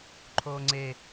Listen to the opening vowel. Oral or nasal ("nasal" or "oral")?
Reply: oral